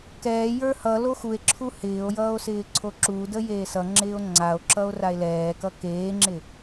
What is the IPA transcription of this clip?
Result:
kɛːjə˞ hʌlo xue̯ǁʰu hɪːo̯jʌːo̯ sɪːǀʰoǁudə jeːsʌŋ͡ǁɪːo̯ ŋ͡ǀao̯ǁʌo̯ rae̯lɛːkʌ keːŋ͡ǁɪ

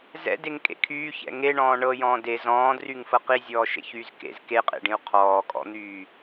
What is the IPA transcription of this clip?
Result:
zɛ̰deŋkʼḛ kʰyːçɛ̰ ŋeɳɔ̃ː ɳɤjɔ̃ː de zɔ̃ːdryŋfɤ qizʲɔːʃḛçyːz kḛz keqʼḛɖĩu̯ qʰɔːkʼɔ̰n̪yː

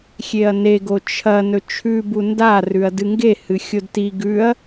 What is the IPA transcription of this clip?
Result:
xʲeɐ̯neɡo t͡ʃʰɐ nɵt͡ʃʰʉbu ndarʉɐ̯ dɨŋɡe hɨxʲodti ɡʉɐ̯

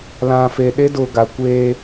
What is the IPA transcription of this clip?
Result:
lã˨fe˨ɗe˦dʊ˨ ɡa˨ kʷeː˦

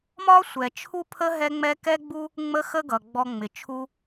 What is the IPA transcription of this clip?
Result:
mɒ˦sʷɛ˨ t͡ʃʰu˦pʰə˦ ɦɛ˦ŋ͡mɛ˦ kɛ˦ɡ͡bu˦ | ŋ͡mə˦xə˦ɡʌ˨ ɡ͡bɔ˧ŋ͡mɪ˨t͡ʃʰu˦

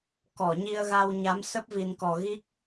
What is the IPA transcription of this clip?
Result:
kɔ˧˩ɲi˧ə̯ɣa˧wɲa˨˦m sə˦˥p̚vi˨˩nkɔ˨˩ ɣi˦˥k̚

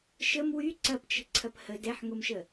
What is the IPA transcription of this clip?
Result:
ʃəm wy ǀɐpt͡ʃə̤ ǀʰɐphə dɛħŋomʃə

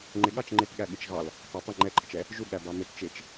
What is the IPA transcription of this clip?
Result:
ŋ͡ǃɪɠɑt͡ʃ ŋ͡ǃɪtɠæɠɪt͡ʃ ɣɑl | tɑtˤ ə ŋ͡ǃɛǃʼət͡ʃɛ | ʒuɠæbɑ mɪt t͡ʃɪt͡ʃ

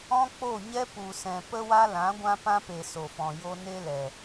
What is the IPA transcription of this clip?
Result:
ɔ̃˦k͡po˦˨ ɲɛ˦ pu˨sɛ̃˨ pə˦wa˦lã˨˦ɡʷã˦ pã˦pe˨ so˨fɔ̃˨jo˦ ne˦lɛ˨

